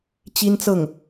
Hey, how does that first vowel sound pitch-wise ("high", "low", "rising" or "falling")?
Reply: high